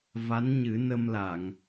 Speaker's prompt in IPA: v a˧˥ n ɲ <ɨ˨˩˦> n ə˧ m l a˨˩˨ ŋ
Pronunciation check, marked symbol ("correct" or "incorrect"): correct